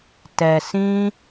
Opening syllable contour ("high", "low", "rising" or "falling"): low